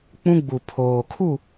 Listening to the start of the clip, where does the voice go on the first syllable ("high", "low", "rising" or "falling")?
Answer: high